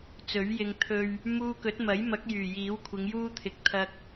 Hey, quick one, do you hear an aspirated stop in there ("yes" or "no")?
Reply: yes